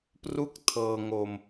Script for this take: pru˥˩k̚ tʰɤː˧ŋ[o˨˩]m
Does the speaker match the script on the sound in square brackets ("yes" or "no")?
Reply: no